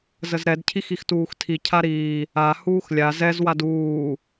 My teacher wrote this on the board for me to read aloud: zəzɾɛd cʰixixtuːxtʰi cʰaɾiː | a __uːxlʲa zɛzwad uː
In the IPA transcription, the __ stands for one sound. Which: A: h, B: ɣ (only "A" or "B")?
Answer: A